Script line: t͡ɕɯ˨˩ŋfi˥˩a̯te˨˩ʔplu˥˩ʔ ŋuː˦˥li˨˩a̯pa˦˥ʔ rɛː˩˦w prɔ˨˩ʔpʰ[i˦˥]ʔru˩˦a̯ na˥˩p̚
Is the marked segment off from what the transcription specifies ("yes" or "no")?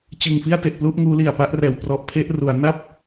yes